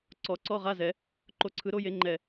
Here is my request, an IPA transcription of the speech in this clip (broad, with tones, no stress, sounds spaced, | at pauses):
ǀ ɔ˨˩˦ ǀ ɔ˧˥˧ ʁ a˧˥˧ z ɛ˨˩˦ | ǃ o˨˥ ǀʰ ɯ˨˥ ɾ o˦˥ j e˨˥ ŋ͡ǃ ɛ˧˩